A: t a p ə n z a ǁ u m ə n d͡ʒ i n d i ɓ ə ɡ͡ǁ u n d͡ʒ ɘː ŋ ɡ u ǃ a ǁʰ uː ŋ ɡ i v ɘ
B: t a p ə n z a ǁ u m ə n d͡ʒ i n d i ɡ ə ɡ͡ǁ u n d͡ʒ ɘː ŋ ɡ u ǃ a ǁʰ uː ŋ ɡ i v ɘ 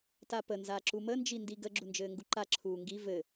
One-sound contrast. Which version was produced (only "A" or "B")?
B